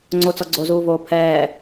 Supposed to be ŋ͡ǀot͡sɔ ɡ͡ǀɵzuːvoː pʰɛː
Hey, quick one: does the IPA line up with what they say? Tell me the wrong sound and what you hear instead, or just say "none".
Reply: ɵ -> o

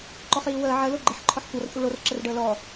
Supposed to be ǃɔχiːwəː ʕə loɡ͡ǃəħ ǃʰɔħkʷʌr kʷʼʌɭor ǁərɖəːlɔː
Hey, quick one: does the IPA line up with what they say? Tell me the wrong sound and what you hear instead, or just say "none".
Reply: none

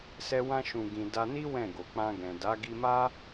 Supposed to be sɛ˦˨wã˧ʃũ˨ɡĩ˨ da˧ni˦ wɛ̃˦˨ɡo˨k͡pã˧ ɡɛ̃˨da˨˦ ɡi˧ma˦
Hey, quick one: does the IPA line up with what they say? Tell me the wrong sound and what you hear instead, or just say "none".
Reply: ɛ˦˨ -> ɛ˧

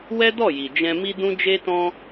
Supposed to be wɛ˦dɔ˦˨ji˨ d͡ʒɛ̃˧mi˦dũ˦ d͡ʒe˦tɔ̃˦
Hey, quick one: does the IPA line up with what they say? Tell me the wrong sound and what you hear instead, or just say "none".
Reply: none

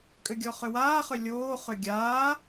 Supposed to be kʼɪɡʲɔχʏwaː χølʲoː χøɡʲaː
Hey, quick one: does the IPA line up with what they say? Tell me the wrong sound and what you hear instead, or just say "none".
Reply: ɪ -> ʏ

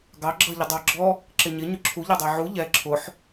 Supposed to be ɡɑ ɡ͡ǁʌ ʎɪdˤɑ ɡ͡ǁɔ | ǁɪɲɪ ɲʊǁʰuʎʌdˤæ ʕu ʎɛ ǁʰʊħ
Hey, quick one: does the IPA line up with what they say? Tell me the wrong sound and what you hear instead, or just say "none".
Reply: none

